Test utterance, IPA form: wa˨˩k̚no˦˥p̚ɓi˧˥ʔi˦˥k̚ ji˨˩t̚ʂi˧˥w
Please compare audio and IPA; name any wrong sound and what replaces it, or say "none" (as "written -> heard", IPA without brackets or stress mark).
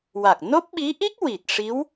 j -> w